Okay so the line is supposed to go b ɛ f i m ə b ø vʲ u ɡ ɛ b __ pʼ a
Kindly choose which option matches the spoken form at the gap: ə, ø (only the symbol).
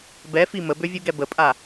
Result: ə